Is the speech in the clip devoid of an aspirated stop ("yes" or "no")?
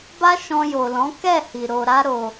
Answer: yes